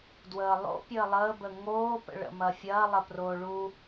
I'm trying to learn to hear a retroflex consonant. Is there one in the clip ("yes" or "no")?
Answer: yes